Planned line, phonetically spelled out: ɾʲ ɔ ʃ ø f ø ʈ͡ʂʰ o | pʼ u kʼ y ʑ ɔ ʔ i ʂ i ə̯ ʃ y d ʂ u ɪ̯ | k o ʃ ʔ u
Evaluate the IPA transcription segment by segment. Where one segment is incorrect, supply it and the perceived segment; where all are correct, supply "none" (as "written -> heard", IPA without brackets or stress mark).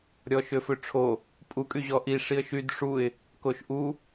none